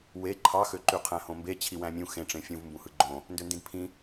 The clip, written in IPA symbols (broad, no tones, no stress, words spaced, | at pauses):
we ǃʰɑxø ǃyqʰæ̃hõmbe t͡ɕʰiwæ̃mʲũ xẽʈ͡ʂẽ fʲũv mbũhɯɡ͡ǃõ | ndøndĩdpʰĩ